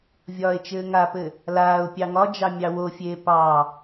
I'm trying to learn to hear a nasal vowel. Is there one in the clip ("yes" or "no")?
no